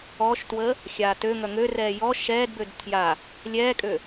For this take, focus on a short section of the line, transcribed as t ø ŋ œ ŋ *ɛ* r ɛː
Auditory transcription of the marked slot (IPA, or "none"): ø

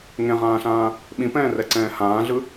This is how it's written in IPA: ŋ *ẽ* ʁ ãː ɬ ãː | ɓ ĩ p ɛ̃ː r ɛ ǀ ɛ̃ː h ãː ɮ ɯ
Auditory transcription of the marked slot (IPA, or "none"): ẽ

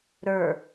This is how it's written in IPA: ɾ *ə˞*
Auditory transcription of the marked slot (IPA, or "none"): ə˞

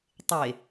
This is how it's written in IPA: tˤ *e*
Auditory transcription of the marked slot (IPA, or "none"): e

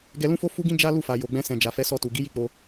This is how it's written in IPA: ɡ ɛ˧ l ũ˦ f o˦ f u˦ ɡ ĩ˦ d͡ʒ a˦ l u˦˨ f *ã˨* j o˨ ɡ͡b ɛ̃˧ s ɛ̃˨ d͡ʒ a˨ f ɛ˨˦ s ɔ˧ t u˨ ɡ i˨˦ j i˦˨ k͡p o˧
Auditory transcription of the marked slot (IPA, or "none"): a˨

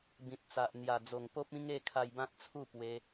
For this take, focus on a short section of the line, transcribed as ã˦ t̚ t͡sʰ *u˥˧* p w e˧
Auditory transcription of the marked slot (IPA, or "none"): u˥˧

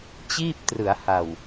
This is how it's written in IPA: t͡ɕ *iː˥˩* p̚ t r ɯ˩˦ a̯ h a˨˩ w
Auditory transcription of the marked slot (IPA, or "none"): iː˥˩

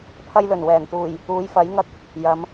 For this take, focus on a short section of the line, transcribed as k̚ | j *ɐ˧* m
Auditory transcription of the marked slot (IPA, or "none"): ɐ˨˧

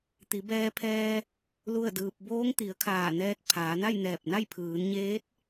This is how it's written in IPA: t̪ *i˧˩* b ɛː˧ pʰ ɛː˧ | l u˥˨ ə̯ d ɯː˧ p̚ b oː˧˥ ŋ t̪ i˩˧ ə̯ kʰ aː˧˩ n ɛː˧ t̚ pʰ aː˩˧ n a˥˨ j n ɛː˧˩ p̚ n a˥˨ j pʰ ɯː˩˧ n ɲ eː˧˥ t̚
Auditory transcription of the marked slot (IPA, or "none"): i˩˧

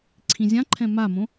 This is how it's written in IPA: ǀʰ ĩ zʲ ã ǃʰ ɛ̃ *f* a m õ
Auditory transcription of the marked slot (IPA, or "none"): m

